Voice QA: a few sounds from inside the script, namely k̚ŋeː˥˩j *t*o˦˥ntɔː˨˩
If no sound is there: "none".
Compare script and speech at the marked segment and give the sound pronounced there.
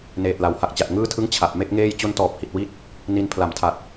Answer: t͡ɕ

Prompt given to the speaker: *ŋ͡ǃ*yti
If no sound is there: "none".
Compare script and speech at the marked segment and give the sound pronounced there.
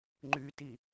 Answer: ŋ͡ǃ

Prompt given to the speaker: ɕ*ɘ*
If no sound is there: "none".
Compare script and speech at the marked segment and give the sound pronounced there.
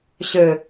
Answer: ɘ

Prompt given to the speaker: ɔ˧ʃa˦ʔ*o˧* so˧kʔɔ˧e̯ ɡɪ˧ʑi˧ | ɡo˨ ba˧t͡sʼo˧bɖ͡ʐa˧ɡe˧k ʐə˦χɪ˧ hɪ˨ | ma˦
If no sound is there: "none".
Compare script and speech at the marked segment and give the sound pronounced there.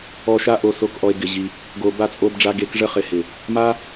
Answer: o˧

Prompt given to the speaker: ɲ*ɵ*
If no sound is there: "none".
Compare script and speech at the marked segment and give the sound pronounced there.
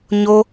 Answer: o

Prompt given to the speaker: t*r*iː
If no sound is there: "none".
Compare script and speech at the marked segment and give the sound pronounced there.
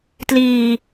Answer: l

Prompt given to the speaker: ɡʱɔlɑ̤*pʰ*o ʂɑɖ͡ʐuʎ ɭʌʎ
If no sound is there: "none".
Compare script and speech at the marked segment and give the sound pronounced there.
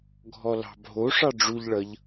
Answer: bʱ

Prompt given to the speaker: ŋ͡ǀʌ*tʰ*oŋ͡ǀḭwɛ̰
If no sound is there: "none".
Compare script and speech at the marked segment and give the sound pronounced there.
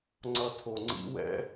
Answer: tʰ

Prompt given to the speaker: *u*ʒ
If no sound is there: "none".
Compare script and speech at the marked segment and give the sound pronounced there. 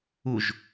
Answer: u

